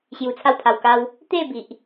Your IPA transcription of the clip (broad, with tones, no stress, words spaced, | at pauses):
ɕju˧t͡sʰa˥˧wpʰa˧wka˦w | t̪e˥˧bi˨ʔ